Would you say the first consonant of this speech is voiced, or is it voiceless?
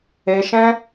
voiceless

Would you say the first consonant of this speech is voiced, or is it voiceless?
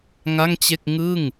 voiced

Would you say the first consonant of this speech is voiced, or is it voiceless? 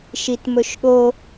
voiceless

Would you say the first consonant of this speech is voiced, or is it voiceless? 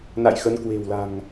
voiced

